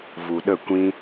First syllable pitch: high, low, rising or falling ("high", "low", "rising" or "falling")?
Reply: low